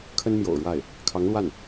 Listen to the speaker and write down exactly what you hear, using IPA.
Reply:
kʰ ə˥ n m j o̰˨˩ ʊ̯ ɻ w a˥˩ ɪ̯ | kʰ ɑ˧˥ ŋ l w a˥˩ n

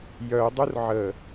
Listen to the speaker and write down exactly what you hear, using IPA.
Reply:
j œ dˤ u r ʕ ə

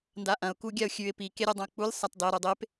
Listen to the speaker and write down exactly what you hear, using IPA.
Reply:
n d a ʔ ɐ̃ ʊ̯ k u ɡʲ a ʊ̯ xʲ ʉ ɪ̯ p i k e ɾʲ e dˤ ɐ̃ ʊ̯ k͡p u lʲ sˤ a t dˤ e ɾ u dˤ e p

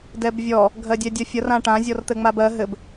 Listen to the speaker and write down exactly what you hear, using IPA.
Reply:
d ɛ b vʲ ɔ | ɡʱ ɜ dʲ ɛ dʲ ʌ fʲ ʌ r ã ʈ ã zʲ ɔ r t̪ ɘ ŋ͡m a b ɜ ɦ ɘ b

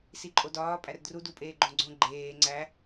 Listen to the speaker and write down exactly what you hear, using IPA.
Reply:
s i ǃʼ o d ɒː pʼ æ r d r u d u pʼ eː ɡ͡ǃ õ ɡ͡ǀ õ ɡ͡ǃ eː ŋ͡ǀ æ

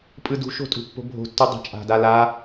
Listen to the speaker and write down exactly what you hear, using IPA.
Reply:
pʼ ɯ d ṳ ʃ o̤ tʼ ṳ pː o̤ bʱ o̤ tː u dˤ a̤ t͡ʃʼ a̤ d a l a

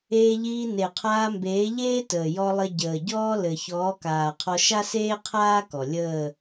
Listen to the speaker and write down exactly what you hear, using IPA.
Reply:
eː˧ ʎ iː˧ n e˨ qʰ aː˧ m b eː˨˦ ʎ eː˦ t əː˨ j ɔ˧ lˠ ɘ˧ ɟ əː˨ ɟ ɔː˦ l ɘ˨ ç ɔː˨˦ k aː˨ qʰ ɔ˧ ʃ a˦ s eː˦ qʰ aː˦ k ɔ˨ lʲ əː˦˨

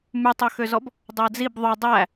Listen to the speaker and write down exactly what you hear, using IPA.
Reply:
m ʉ tˤ ɵ x ø z ɔ b | dˤ æ d͡z i b ðˤ ʉ dˤ æ

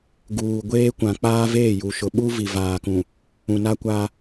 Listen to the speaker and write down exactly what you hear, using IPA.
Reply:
ɡ uː˨ ɡʷ eː˦ kʷ ã˨ k͡p aː˦ v eː˦˨ j u˨ ʃ ʊ˨ ɓ u˦ v i˨ v aː˨ k ũ˨ | ũ˨ n a˦ kʷ a˦

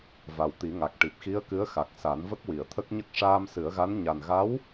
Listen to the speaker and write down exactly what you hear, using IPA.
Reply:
v a˨˩ w t̪ i˨˩˦ ŋ a˨˩ k̚ ʈ i˨˩ p̚ x i˧˥ ə̯ k ɨ˧˥ ə̯ x a˨˩ k̚ s a˨˩˦ n v ə˦˥ k̚ w i˨˩˨ ə̯ t̪ʰ ə˦˥ k̚ ɲ ə˦˥ k̚ ʂ aː˧ m s ɨ˨˩˦ ə̯ ɣ a˧˥ n ɲ a˨˩ n ɣ a˧˥ w

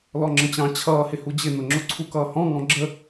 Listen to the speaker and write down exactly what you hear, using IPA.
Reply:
l ɔ ŋ͡ǁ ə̃ t͡ɕ ɑ̃ t͡ɕʰ ʌː h ɪ h u d͡ʑ ɪ n ʊ ŋ͡ǁ ʊ ǀʰ u k ʌː h ɔ̃ ŋ ɔ̃ ɡ͡ǁ ə

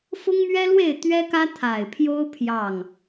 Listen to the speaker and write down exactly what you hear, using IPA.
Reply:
f ʊ˦ ŋ m ɥ ɛ˦ l w e˥˨ ɪ̯ t̪ ɥ ɛ˦ k ä˦ t̪ʰ a˨˩ ɪ̯ pʰ j o˦ ʊ̯ pʰ j ɑ˥˨ ŋ

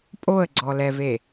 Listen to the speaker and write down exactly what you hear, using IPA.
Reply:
pʼ o ə̯ ɡ͡ǀ ɔ l ɛ v e

